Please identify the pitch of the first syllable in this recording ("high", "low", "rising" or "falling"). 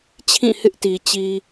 falling